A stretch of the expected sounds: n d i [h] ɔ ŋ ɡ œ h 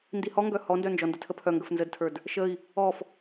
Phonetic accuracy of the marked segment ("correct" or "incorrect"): correct